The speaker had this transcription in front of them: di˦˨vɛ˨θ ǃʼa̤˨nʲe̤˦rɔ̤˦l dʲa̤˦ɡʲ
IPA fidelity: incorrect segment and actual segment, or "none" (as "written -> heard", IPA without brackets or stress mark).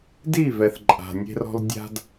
ɡʲ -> d